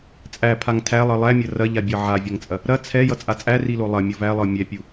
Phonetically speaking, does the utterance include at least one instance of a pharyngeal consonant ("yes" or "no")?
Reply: yes